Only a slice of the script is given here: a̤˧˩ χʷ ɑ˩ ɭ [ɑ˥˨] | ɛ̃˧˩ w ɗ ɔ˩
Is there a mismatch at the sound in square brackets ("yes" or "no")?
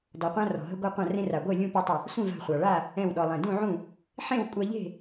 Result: yes